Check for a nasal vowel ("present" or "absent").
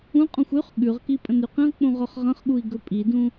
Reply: present